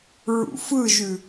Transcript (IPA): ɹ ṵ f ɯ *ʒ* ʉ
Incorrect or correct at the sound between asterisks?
correct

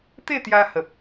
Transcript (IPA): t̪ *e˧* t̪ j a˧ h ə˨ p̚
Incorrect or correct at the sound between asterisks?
incorrect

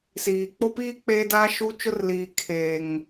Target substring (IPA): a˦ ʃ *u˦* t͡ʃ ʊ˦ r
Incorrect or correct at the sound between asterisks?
correct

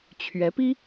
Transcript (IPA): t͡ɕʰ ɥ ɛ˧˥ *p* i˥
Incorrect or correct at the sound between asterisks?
correct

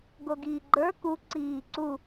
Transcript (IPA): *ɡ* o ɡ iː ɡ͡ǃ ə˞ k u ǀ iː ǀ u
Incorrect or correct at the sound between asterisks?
correct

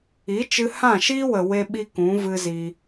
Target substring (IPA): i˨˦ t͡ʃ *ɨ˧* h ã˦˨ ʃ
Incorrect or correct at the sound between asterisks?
correct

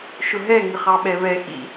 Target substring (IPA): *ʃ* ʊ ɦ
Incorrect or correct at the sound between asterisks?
correct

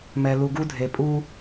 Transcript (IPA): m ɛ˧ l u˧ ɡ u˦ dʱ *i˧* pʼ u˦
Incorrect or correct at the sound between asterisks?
incorrect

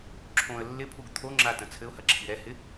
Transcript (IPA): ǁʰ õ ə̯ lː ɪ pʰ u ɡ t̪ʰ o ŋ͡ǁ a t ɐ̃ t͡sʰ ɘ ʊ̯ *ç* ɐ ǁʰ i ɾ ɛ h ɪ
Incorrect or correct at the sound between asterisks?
incorrect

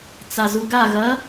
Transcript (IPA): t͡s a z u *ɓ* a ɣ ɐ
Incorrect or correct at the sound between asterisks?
incorrect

